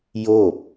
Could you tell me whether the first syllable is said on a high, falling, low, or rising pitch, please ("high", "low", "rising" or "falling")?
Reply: falling